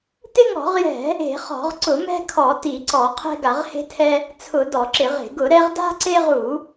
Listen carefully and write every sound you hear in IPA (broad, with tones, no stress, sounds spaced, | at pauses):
t ɪ˦ ŋ ɔ̤˧˩˧ ʁ j ɛ̤˧˩˧ | e̤˧˩˧ χ ɔ̤˧˩˧ ʁ ǀ ʊ˧˩˧ m ɛ̤˦ kʰ ɔ˧˩˧ t i˧˩˧ ǀ ɔ˧˩˧ qʰ ɛ̤˦ ɡ a˧˩˧ ʁ h e̤˦ tʰ ɛ˦ | t͡sʰ ʊ˧˩˧ d ɔ˧˩˧ ǁ ɪ˧˩˧ ʁ e̤˧˩˧ ɡ ʊ˧˩˧ ɾ ɛ˦ ʁ d a̤˦ ǀ e˦ ʁ u˧˩˧